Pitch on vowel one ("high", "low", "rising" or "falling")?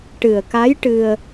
low